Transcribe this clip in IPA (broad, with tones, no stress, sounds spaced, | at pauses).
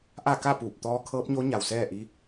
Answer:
ʔ a˥˨ k a˥˨ p uː˧˩ p̚ t̪ ɔː˧˥ kʰ ɤː˧˥ p̚ ɲ o˧˥ ɲ a˩ w s ɛː˥˨ ʔ i˧˥